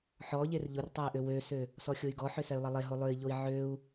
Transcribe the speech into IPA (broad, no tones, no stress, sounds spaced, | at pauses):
ħ ɔ ʎ e r ʎ ʊ r tˤ ø i̯ ʔ ø w ø s ø | s ɔ xʲ o y̯ ɡ ɔ ħ ʏ s ɛ y̯ lˠ ɐ lˠ e ɦ o lˠ ø i̯ ʎ o i̯ ʕ ø u̯